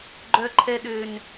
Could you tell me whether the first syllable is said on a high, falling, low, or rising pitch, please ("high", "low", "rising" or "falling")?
high